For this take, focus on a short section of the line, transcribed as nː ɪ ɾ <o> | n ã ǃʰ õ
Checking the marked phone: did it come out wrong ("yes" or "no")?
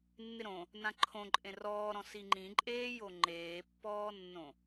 yes